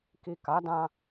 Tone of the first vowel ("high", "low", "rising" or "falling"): low